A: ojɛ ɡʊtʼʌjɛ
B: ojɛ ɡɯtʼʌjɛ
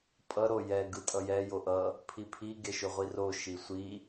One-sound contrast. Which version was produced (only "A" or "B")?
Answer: B